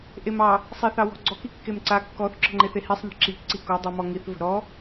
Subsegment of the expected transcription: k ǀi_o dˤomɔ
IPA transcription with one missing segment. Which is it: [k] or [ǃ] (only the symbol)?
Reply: k